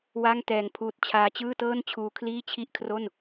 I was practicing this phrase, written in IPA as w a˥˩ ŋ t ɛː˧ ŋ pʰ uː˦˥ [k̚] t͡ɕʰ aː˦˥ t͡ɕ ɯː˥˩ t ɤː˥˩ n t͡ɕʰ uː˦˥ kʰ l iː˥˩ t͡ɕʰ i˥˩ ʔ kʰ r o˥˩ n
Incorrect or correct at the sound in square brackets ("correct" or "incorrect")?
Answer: incorrect